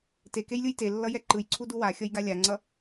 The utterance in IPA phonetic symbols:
tekejlʲɯj telːʌjɛ ǃɯjǀʰudu waxʲʌjɡa lʲaŋ͡ǀʌ

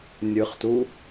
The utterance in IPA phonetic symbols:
nʲɯχtu

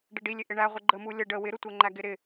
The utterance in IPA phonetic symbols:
ɖəɖilʲɪ ʔɪɳæ ʁʷɪɡ͡ǃəmu lʲə ɖə wɪɾʊtʷɛŋ͡ǃæ ɡɪɾɪ

